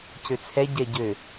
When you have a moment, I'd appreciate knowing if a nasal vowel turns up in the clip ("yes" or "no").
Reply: no